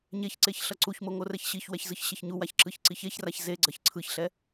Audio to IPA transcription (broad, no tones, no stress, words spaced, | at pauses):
ɲeçǀeç ɬʌǀuçmo ŋorɛçɕiçwɛç zɯçɕeçɲuwaç ǁɯçǀiçeçraç zeɡ͡ǀʌç ǀʰɯçɬɛ